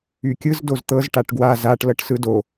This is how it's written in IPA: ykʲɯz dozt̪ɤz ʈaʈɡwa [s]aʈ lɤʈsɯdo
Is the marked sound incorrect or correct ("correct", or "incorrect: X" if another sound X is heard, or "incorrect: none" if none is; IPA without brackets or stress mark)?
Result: incorrect: z